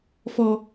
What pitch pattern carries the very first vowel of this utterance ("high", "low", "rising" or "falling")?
high